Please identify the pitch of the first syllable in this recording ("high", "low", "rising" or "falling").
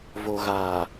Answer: low